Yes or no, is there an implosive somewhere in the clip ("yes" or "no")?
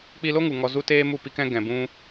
no